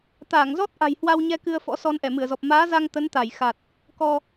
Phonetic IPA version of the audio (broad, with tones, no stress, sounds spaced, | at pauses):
t̪ aː˧˩ ŋ z ɔ˦˥ t̚ ʔ a̤˨˩ j h w a˧ w ɲ ɛ˧ k ɨ˧ ə̯ f ɔ̰˧˥ s ɔ˧ n ʔ ɛ˧˩ m ɨ˧˩ ə̯ z ɔ˨˩ p̚ m aː˨˦ z a˧ ŋ t̪ ə˨˦ n t̪ a˧˩ j x a˨˩ t̚ | k ɔ˧